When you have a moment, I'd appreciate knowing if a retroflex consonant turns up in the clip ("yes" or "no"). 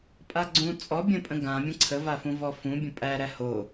no